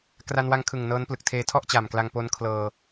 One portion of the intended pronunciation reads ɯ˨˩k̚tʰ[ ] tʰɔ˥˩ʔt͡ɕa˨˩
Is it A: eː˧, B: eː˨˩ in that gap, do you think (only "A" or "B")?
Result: A